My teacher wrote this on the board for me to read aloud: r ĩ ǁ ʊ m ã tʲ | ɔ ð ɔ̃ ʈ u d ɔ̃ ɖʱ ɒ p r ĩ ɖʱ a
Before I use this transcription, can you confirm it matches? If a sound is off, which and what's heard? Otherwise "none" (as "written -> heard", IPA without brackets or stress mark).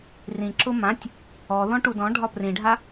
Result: none